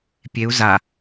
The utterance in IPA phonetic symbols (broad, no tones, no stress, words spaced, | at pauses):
pʲeu̯ za